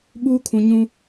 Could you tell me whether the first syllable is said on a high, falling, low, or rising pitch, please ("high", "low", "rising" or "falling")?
high